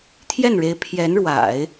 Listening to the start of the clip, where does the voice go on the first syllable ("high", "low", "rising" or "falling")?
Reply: falling